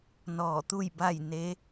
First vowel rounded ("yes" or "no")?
yes